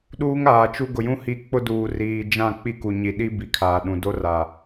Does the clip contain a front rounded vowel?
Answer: no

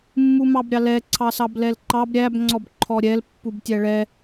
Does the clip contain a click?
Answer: yes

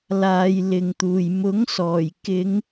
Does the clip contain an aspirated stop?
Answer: no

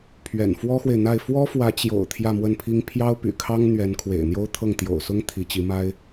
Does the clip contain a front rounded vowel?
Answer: yes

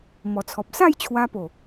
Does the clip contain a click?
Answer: no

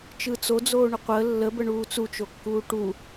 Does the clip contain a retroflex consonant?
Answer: yes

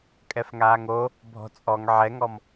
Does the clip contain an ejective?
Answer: yes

